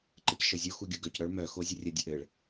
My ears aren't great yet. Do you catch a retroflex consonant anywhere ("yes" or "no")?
yes